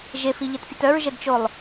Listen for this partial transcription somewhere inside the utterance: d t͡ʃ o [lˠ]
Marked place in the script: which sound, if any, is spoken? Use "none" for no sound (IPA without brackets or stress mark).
lˠ